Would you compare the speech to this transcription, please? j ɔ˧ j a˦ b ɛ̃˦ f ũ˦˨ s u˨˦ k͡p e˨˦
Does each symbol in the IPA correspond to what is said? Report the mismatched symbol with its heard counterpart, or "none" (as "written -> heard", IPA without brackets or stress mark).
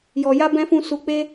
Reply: e˨˦ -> e˦